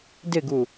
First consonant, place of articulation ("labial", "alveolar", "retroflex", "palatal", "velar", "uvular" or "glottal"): alveolar